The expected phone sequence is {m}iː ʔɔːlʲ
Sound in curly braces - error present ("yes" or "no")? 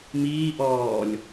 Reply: no